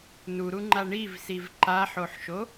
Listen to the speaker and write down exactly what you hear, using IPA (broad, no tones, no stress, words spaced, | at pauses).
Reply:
nuɾuŋ͡ǃa ɳivsiv ǃaħoħʃo